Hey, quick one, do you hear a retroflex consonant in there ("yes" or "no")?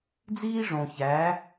yes